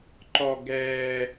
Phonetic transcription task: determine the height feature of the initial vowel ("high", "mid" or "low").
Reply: mid